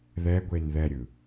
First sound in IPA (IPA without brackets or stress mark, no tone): ð